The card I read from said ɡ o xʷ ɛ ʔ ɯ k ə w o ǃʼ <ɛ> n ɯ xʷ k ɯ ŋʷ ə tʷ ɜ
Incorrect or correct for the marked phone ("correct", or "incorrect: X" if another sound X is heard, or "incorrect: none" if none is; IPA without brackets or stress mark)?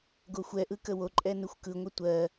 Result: correct